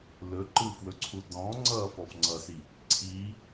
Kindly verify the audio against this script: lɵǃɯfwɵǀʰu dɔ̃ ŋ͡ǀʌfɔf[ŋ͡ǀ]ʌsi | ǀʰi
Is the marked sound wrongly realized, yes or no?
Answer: no